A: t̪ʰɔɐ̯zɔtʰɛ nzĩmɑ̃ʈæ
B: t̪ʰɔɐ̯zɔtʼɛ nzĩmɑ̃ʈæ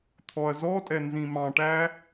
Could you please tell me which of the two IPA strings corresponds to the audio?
B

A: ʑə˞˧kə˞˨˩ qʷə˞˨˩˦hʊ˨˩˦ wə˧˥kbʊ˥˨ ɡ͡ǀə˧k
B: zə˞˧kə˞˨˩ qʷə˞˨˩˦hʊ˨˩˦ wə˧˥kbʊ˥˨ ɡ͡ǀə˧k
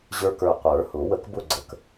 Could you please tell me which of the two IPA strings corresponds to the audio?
A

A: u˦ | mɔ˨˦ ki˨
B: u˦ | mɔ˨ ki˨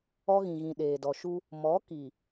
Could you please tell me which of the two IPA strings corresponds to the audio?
A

